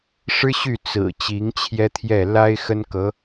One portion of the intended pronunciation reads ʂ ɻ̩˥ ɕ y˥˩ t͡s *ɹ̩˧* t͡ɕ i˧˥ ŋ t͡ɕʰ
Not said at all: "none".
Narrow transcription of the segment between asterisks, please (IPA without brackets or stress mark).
ɹ̩˨˩